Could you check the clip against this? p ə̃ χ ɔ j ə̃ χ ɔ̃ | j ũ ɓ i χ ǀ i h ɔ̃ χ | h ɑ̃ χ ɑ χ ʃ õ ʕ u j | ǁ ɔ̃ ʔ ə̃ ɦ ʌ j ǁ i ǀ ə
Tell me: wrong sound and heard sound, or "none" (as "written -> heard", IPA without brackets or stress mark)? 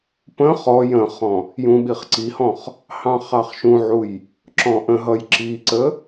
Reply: õ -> ũ